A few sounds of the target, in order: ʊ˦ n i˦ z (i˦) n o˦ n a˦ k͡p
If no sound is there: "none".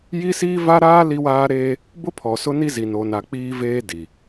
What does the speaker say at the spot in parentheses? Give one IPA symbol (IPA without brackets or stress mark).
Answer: i˦